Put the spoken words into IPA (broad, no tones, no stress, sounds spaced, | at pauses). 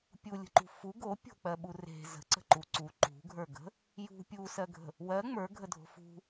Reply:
pʲ u lʲ ə̤ ǃ ṳ f u ɡ o pʲ o̤ k͡p ɜ ɓ u r e̤ z ə̤ ǀ ə̤ ǃ u ǀ u ǃ ṳ ɡʱ ə˞ ɡ ə̤ | j ṳ pʲ u s ɜ ɡʱ ə̤ | w ɜ ŋ͡m ə˞ ɡʱ ə dʱ o̤ f ṳ